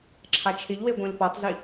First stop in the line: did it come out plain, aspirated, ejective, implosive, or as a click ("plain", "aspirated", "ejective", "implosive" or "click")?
click